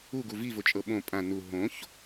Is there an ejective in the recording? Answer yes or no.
yes